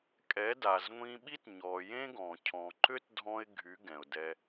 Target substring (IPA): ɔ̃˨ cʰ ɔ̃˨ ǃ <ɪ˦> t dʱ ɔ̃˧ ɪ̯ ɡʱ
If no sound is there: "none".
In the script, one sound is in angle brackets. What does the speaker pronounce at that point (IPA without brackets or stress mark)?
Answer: ʏ˦